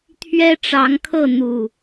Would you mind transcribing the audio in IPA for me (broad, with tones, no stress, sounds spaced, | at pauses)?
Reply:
t̪ʰ ɥ ɛ˦ ʈ͡ʂ ɑ˨˦ ŋ kʰ ɤ˥˨ n̪ u˨˩